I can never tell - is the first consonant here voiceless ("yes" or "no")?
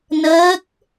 no